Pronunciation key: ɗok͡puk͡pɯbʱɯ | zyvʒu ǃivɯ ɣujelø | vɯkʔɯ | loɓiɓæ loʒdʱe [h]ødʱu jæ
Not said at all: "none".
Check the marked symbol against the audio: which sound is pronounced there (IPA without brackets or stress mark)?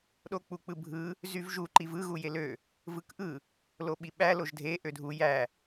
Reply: ʔ